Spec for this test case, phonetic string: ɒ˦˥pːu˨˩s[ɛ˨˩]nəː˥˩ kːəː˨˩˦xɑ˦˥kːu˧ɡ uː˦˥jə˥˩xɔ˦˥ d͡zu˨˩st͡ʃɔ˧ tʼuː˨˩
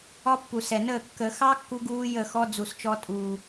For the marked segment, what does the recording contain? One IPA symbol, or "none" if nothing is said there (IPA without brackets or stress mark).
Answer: ɛ˨˩